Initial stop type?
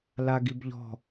plain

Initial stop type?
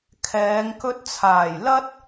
aspirated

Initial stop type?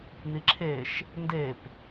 click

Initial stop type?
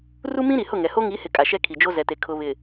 ejective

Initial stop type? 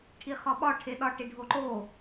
aspirated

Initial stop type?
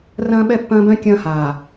implosive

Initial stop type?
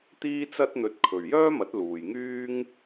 plain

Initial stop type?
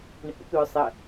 plain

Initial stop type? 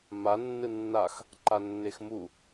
click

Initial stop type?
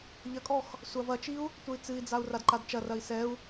ejective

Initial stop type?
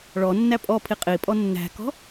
ejective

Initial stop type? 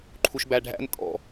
click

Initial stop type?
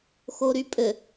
ejective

